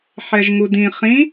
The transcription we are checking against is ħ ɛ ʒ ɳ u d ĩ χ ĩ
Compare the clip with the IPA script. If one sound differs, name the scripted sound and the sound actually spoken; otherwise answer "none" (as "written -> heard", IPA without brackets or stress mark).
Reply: ɳ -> ŋ